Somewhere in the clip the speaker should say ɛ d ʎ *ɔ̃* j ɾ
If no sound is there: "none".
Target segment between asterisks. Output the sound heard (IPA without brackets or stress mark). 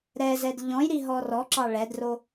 ɔ̃